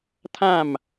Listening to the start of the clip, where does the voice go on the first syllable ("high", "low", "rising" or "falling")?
falling